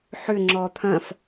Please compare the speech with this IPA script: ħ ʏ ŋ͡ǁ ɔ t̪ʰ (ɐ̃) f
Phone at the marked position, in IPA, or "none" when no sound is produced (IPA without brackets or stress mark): ɐ̃